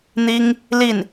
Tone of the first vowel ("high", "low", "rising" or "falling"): high